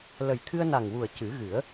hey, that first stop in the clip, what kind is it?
aspirated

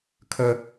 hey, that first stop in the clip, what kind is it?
aspirated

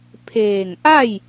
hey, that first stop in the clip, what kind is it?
aspirated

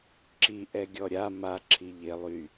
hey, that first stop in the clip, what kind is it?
click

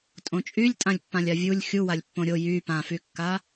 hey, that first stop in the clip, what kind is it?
ejective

